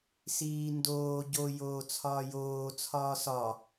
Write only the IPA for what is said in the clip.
siːndoː ɟo joːt͡sʰɒːjoː t͡sʰɒːsɒ

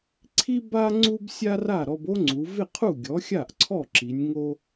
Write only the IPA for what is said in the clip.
ǀʰi˥ ba˥ ŋ͡ǀu˥bsʲa˥ra˥˩ ɾɔ˧bo˥ŋ͡ǀu˩˧ vɪ˥˩qʰu˥˩ ɡʲɔ˩˥xʲa˥˩ʔǀʰɔ˥˩ǁi˩˧nʲ ŋo˧

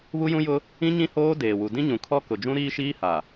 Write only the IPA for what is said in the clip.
βu˦jũ˦jʊ˦ | ĩ˦ɲĩ˦hoː˦ deː˨wu˨ dĩ˦ɲũ˨kʰɔ˦ kʊ˨d͡ʒũ˦ ɾiː˦ʃiː˦ha˨

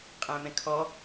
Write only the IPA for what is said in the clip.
qʼæ̃mɛ̃kʰɔ

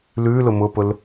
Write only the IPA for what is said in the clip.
lʉlʊ mʊpʊl

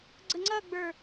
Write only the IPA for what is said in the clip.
ɡ͡ǀəŋ͡ǀʌɡ͡bə˞

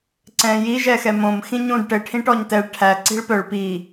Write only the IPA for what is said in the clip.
ǀɛ̃ji ʒɛxɛmõm xĩɲũd ʈɘ ʈʰĩʈɔɲtɛɭ ʈʰæ ǀi̤ɭpœɭ pi

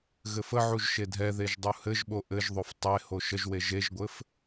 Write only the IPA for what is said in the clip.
ɣɘfəʕuʒ ʃedʱɛðeʒ dˤuhɘʒɓo ʔɘʒðˤof tˤeho ʃəʒwe ʒeʒɡʷɘf

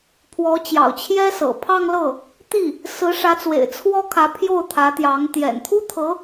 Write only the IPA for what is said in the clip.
pʰwɔ˧˥t͡ɕjɑ̰˨˩ʊ̯t͡ɕʰjɛ˥sɤ̰˨˩ pʰɑ˥˧ŋlɤ˥˩ | t̪i˥˩ | sɹ̩˧˥ʂä˧˥t͡swḛ˨˩ɪ̯ t͡sʰwɔ˥kʰä˧˥ pʰjo˥˩ʊ̯t̪ʰä˧˥t̪jɑ˧˥ŋ t̪jɛ̰˨˩nt̪ʰu˥ t̪ʰɤ˧˥

